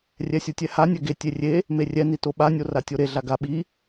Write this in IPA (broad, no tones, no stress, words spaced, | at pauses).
rʲɛsʲɯtʲɛha nʲɛɡe tʲerʲe | merʲɛ nitoɓa nʲoratʲoɾe ɮaɡa ɓi